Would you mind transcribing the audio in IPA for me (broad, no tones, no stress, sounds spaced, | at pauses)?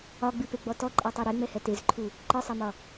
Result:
ɒ ɡ͡b ɨ p e ɡ͡b ɔ t ɔ ǃʼ ɛ tˤ e ɾ e ŋ͡m ɛ h ɛ t e z ǃʰ u | ǃ ɨ sˤ ɛ m ɒ